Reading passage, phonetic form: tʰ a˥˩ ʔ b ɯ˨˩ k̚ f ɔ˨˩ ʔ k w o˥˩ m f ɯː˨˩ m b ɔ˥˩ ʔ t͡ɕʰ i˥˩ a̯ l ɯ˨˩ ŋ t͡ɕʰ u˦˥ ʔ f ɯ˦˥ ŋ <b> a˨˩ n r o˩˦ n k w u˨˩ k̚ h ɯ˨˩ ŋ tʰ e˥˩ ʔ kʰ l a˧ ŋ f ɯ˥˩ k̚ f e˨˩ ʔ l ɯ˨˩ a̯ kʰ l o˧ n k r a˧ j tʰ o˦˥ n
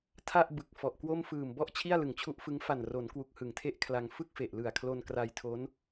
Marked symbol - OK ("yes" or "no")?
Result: no